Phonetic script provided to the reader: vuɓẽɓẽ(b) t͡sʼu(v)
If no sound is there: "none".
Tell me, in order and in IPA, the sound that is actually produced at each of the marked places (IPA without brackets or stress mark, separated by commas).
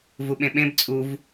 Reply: b, v